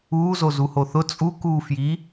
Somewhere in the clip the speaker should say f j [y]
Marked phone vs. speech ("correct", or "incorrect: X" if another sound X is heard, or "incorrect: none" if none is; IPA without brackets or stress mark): incorrect: i